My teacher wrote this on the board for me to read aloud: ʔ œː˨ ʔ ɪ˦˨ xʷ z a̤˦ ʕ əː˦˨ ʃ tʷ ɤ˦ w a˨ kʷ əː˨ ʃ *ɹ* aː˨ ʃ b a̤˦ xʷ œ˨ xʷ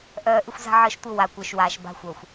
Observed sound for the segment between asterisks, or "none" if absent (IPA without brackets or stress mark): w